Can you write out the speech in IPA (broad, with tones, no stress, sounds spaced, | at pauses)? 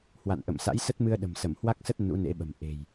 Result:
h w a̰˧˨ n ʔ ə̰˧˨ m s a̰˧˥ j s ə˦˥ t̚ m ɨ˧ ə̯ ɗ ə̤˨˩ m s ə˧˩ m h w a˦˥ k̚ s ə˦˥ t̚ n ṵ˧˥ n ḛ˧˥ ɓ ə̤˨˩ m ʔ e̤˨˩ j